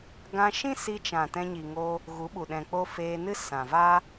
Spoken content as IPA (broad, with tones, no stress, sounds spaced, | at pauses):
ɡ ã˧ ʃ ĩ˦ s i˧ t͡ʃ ã˨ t ɛ̃˧ ɲ i˨ ŋ o˧ | ɣ u˨˦ ɓ u˨ ɗ ɛ̃˨ k͡p o˧ f eː˧ n ɨ˦ s ã˨ v a˦